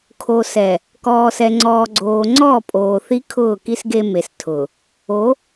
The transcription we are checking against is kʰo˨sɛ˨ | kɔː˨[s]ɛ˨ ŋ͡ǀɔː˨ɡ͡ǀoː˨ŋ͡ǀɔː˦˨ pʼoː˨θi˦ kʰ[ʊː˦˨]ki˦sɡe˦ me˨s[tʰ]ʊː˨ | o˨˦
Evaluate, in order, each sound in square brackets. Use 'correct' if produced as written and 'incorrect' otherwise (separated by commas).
correct, correct, correct